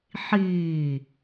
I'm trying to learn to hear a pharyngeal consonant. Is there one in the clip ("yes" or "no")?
yes